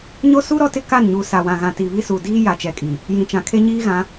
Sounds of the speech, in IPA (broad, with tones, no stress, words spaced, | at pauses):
ɲo˦su˦ ɾɔ˦tɪ˦ ka˦˨nɲu˨ sa˨wã˨ɣã˨ ti˨βi˦su˨ diː˦ja˨t͡ʃɛ˨kʼi˨ | jĩ˨t͡ʃã˨kʰe˦ ɲiː˦ɣã˨˦